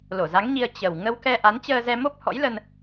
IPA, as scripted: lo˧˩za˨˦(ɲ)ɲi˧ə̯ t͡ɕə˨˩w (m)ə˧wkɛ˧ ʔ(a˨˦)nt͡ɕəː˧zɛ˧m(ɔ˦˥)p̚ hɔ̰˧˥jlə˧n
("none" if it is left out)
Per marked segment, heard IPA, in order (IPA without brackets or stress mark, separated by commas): ŋ, ŋ, a˨˦, o˦˥